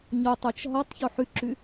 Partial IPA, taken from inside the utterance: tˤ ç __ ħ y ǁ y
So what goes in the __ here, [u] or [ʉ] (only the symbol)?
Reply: u